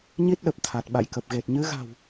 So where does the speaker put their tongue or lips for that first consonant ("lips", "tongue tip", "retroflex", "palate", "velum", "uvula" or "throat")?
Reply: palate